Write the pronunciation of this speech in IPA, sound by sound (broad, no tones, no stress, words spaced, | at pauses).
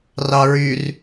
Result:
rɑɹyr